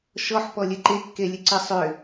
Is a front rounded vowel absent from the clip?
no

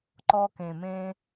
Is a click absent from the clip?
no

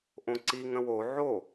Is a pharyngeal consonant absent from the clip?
no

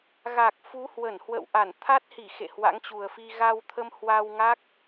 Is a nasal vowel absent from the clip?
yes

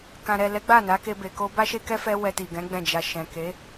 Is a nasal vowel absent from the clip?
no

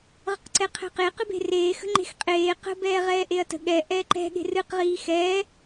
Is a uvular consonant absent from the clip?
no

